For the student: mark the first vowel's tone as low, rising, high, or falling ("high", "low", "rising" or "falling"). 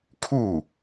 falling